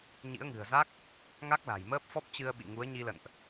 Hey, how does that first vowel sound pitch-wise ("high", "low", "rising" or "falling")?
rising